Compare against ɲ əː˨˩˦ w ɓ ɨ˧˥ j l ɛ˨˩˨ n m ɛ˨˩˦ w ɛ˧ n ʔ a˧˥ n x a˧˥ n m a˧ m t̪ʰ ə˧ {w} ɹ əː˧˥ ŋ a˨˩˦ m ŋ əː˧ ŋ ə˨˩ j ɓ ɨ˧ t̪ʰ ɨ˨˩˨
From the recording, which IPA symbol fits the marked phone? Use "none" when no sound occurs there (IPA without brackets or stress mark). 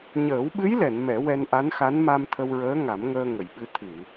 w